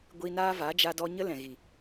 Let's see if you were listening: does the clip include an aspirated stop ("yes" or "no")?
no